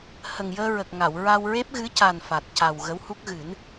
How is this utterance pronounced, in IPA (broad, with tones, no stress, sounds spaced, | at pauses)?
h ə˨˩ ŋ j əː˧ ɹ ə˨˩ k̚ ŋ a˨˩˨ w ɹ a˧ w ɹ e˦˥ p̚ ɣ ɨ˧˥ c a˨˩ n f a˨˩ t̚ c a˨˩ w ɣ ə˧˥ w h u˦˥ k̚ ɣ ɨ˨˩˦ n